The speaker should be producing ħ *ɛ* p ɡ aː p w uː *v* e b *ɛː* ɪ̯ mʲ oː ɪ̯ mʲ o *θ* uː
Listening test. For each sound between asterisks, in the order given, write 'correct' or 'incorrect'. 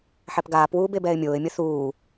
correct, incorrect: b, correct, correct

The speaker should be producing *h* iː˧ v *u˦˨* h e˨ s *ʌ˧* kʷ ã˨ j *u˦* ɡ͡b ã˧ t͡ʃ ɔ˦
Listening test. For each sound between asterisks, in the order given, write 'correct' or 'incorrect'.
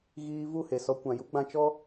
incorrect: ɣ, correct, incorrect: ɔ˧, correct

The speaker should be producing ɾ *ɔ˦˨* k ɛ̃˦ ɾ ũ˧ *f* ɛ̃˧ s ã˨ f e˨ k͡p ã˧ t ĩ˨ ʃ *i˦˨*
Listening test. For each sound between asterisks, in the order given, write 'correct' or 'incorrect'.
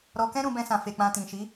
incorrect: ɔ˧, incorrect: b, incorrect: i˨˦

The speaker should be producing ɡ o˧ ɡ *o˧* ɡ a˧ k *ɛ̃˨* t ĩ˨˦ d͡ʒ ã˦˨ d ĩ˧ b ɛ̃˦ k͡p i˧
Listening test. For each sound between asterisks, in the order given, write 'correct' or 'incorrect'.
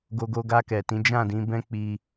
correct, incorrect: ɛ˨

